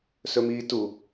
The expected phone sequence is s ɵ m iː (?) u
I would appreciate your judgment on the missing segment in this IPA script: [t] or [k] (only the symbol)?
t